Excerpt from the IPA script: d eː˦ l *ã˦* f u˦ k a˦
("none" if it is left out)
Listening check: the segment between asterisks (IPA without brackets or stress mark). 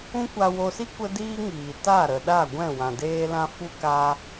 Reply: ã˦